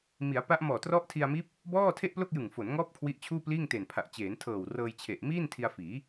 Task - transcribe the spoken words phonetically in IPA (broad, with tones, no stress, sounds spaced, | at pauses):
m i˩˦ a̯ p a˦˥ ʔ m ɔː˨˩ t r ɔ˦˥ ʔ tʰ i˧ a̯ m iː˦˥ p̚ | b ɔː˥˩ tʰ e˥˩ ʔ p l o˥˩ k̚ j ɯ˨˩ ŋ f o˩˦ n ŋ ɔː˦˥ p̚ kʰ w i˦˥ ʔ t͡ɕʰ uː˥˩ p l iː˥˩ ŋ t eː˨˩ n pʰ a˨˩ ʔ t͡ɕ eː˩˦ n tʰ ɤː˨˩ w r ɤː˧ j t͡ɕʰ e˨˩ ʔ m iː˥˩ n tʰ i˧ a̯ f iː˩˦